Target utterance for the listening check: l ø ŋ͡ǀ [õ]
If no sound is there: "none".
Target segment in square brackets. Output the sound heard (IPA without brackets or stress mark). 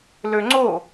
o